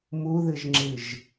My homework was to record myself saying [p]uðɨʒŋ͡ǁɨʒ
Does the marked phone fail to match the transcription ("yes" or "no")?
yes